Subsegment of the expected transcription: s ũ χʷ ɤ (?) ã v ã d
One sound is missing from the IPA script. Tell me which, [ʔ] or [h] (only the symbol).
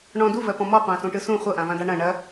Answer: ʔ